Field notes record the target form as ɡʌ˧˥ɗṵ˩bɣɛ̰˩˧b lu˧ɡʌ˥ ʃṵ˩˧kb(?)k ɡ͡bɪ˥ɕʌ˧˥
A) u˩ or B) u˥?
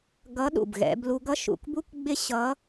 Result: B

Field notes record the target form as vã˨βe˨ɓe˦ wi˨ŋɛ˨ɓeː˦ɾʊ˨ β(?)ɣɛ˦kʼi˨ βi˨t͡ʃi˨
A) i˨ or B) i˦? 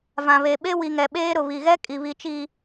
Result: A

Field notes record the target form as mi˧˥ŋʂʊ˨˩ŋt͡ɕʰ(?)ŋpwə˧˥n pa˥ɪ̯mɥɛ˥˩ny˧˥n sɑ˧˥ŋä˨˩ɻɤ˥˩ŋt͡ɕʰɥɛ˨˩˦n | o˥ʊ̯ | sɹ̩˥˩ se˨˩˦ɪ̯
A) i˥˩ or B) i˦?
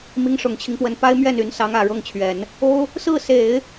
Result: B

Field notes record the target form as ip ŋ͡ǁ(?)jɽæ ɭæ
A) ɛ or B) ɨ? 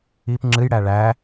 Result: B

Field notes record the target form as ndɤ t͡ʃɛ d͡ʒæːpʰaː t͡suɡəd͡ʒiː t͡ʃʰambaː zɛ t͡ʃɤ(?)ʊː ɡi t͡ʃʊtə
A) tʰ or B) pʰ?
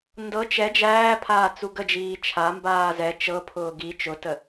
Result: B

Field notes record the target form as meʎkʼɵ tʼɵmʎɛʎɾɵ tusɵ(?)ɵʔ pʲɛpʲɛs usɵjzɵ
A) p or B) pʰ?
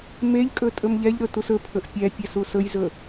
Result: B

